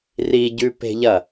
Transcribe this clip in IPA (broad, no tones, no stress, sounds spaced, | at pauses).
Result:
r i ɟ ʉ p e̤ ʎ ɐ